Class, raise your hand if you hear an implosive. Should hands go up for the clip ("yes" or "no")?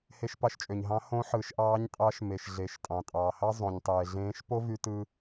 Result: no